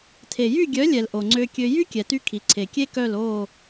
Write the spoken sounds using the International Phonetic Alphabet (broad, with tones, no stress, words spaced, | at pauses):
tʰe˨jy˦˨ɡʲœ˨˦lʲɛ˨l ʔo˨ŋ͡ǀø˧kʲø˧ jy˦kʲɛ˨ty˧ kʰi˨ǀʰe˨kʲe˦kœ˦˨l o˦˨